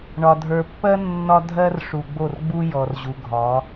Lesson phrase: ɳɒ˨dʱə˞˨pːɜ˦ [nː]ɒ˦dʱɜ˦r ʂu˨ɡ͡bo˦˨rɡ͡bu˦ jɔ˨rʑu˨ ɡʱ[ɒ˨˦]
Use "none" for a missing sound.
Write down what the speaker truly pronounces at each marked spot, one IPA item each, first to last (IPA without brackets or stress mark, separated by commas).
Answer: nː, ɒ˨˦